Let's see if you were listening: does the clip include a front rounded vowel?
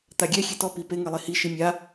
no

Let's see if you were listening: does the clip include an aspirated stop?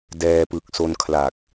yes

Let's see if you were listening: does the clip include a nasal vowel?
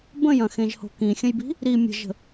yes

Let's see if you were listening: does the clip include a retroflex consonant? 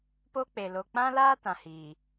no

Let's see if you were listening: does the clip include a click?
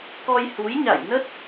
no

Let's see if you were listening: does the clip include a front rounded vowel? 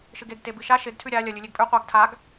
no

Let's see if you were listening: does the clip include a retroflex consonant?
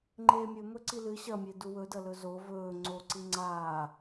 no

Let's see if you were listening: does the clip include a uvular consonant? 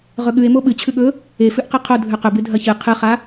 yes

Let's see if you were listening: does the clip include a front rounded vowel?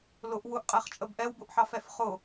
no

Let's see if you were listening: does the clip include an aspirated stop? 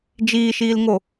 no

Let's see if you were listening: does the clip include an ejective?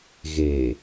no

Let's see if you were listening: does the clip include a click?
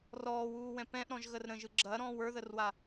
yes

